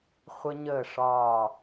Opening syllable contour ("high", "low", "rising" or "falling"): high